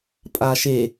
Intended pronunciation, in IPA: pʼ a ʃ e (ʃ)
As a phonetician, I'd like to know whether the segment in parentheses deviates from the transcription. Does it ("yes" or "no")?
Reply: yes